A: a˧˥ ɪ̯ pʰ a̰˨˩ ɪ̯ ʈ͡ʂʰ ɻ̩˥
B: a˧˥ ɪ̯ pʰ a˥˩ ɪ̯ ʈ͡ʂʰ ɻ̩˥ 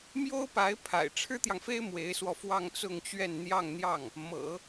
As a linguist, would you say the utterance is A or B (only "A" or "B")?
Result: A